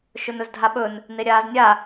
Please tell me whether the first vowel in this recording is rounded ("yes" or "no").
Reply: yes